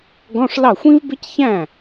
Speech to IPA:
ɡɔ̃˧˥˧ʂlɑ˥˩xʷĩ˥vbɪ˥c çæ̃˥˩

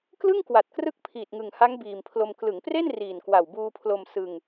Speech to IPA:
klɯ˥˩ŋkwa˨˩t̚krɯ˦˥k̚ pʰiː˨˩t̚ŋɯ˨˩ŋha˦˥ŋ biː˨˩mpʰlo˧m klɯ˩˦ŋpre˥˩n riː˨˩nkwa˨˩wbuː˧pʰlo˧m sɯ˧ŋ

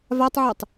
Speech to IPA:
vatˤʕɛtˤ

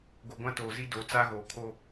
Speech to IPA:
ɡo˨ɡʷã˦toː˨zi˦ do˨˦t͡sa˦ɣoː˨kʰo˦

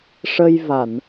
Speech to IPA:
ʂə˧jva˨˩˨n

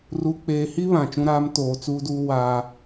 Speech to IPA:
ru˨k͡peː˨hi˦ βã˨t͡ʃũ˦ɾaː˦m toː˨t͡suː˦duː˦ waː˦

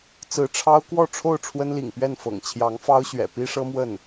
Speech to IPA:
t͡sɹ̩˧˥ʈ͡ʂʰɑ˥ʊ̯ kwɔ˥˧ʈ͡ʂʰo˥˩ʊ̯ ʈ͡ʂʰwə˥nlḭ˨˩ŋpɥɛ˥˩nfɤ̰˨˩ŋ t͡ɕʰjɑ˧˥ŋfɑ˥ʊ̯ɕɥɛ̰˨˩ pi˥ʂɤ˥mwə˥˩n

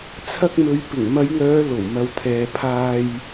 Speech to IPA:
t͡sʰɐ˧k̚mɵ˨˧ɥ pɪ˨˩ŋmɐ˨˧jŋœː˨˧ lo˨˩wmɐ˨wt̪ʰɛː˨ pʰaː˧j

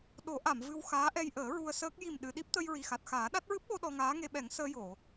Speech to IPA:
ɗo˨˩˦ʔa˨˩˨m vɨ˧wxaː˧˥ʔɛ˧jʔəː˨˩˦ ɹu˧ə̯səː˦˥k̚ ji˨˩mɗɨ˨˩˨ ɗi˦˥p̚t̪ə˧jɹi˨˩xa˨˩t̚ xaː˨˩˦ɗa˦˥t̚ ɹɨ˦˥p̚ɓo˧ ɗɔ˧ŋaː˧˥ŋe˧ɓɛ˨˩˦ŋ səː˧jo˨˩˨

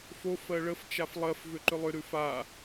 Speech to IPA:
fo fɜɭəf t͡ʃaflˠɜf vʏǃʏlˠʏ ɾʉfa

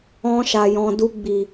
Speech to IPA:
ɔ̃˧ ʃa˨jɔ̃˨du˧ ɡ͡bi˨

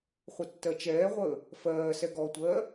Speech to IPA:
χʷətːɜt͡ʃɛːʁʷəː | fɜːsɛ ɡɔtʷɜː

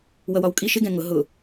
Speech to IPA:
wʌwɒwkʼiʃ ɪɡɛ̃ ŋʊ ɦʊ

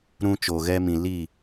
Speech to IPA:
ɾũ˧t͡ʃo˨ɣɛ˧mĩ˨ li˦˨

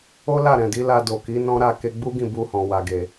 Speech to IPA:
o˦la˦˨ɾɛ̃˨di˨˦ la˧do˨ki˨˦ nɔ̃˦ɾa˦˨ ke˧ɡ͡bu˦ɡĩ˦˨ bu˧hɔ̃˨wa˨ɡe˨

